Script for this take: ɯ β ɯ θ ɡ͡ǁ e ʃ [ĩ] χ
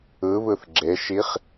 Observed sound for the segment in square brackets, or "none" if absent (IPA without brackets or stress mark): i